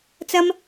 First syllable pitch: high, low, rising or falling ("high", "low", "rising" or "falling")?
high